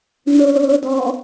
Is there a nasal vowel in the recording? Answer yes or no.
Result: no